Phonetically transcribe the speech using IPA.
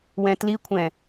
w ɛ̃ t l i kʷʰ ɛ̃

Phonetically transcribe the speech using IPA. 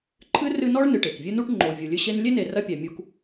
ǃʰ ɨ˥ r ɨ˦ n ɔ˥ ɭ n ɨ˨ ʈ e˩ k vʲ ɨ˦ n u˦ ʈ ŋ͡ǃ o˨ vʲ u˨ lʲ ɨ˦ ɕ e˥ n lʲ e˥ n e˨ r ɐ˦ pʲ æ˨ mʲ u˦ k

